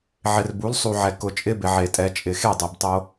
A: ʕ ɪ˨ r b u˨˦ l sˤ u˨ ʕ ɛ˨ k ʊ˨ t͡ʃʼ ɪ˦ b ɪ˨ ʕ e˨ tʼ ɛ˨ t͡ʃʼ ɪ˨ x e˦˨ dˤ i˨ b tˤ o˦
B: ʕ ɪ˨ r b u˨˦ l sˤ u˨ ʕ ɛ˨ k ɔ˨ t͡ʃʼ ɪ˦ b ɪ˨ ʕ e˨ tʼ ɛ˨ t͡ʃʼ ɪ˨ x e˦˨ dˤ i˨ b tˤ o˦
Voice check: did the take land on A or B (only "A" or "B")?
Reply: A